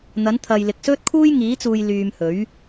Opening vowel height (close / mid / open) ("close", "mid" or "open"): open